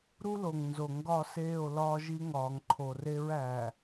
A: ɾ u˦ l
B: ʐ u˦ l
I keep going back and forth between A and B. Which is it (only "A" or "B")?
A